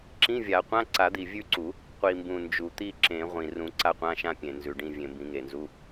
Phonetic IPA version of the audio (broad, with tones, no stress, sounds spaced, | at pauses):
ǁ ĩ˧˥˧ vʲ a˨˩˦ qʷ ã˧˥˧ ǀ a˨˩˦ d̪ i˨˩ vʲ ʉ˦˨ ǀ u˨˩˦ | qʷ i˨˩ m b ũ˨˩ n d͡ʒ u˨˩ t̪ i˦˨ ǁ ẽ˨˩˦ ʁʷ ĩ˨˩ r ũ˨˩˦ ǀ a˦˨ qʷ ã˧˥˧ ʃ ã˦˨ pʲ ẽ˨˩ n z ʉ˨˩ ɖ ĩ˦˨ vʲ ẽ˨˩ m b ĩ˨˩˦ ŋ e˨˩ n z u˧˥˧